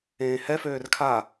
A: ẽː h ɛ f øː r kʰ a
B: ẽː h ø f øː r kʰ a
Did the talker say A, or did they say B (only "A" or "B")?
A